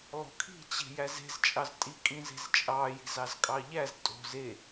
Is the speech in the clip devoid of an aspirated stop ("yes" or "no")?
no